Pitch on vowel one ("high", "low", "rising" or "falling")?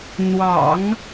low